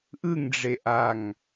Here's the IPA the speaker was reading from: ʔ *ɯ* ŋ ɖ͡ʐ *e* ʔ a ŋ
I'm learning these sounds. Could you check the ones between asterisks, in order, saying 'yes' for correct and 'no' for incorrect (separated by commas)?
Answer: yes, yes